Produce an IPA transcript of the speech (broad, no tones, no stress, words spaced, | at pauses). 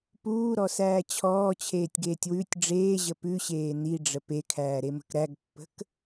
puːɾɔsæː t͡ɕʰɔːt͡ɕʰeːtʲɡeːtʲ wʉtʲ ɖ͡ʐeːʑə pʉɕeː niɖ͡ʐə pekʰæːɾemə̤k ɾæɡpːə̤k